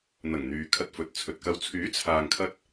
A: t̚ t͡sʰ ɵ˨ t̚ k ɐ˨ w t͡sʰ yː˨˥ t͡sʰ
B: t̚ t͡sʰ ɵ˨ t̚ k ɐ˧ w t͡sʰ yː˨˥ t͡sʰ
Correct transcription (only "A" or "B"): B